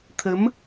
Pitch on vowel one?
rising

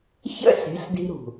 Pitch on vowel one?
high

